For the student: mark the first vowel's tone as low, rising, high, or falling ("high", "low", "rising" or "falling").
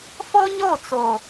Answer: high